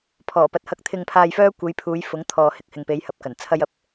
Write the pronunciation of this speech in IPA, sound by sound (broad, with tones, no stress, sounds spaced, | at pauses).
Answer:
pʰ ɔː˨˩ p ɐ˨ t̚ h ɐ˧ k̚ t̪ʰ ɪ˨ ŋ pʰ aː˨ j f œː˧ kʷ e˨˧ j pʰ uː˨˧ j f ʊ˨˥ ŋ t̪ʰ ɔː˨ h ɪ˧ k̚ h ɪ˨ ŋ p e˨˧ j h ɐ˨ p̚ k ɐ˨˩ n t͡sʰ ɐ˧ j ɐ˨ p̚